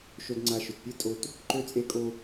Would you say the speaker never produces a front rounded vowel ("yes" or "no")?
no